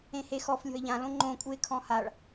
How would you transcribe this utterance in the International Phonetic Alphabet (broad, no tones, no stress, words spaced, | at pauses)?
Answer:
ẽhexɔf lʲɔ̤ɪ̯ʎã lõŋ͡ǃõ kʼuɪ̯kʰɔ̃haɭ